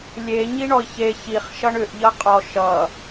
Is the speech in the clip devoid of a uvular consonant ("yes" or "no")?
no